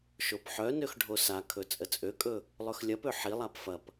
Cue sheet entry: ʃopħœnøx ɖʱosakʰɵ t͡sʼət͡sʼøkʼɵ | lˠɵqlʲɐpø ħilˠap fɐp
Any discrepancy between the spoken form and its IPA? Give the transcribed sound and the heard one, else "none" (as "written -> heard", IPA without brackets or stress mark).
q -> x